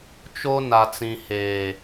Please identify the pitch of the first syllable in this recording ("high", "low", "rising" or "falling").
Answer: high